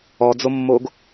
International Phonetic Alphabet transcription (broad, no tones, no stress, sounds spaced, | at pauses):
ɔ d͡z o mː o ɡ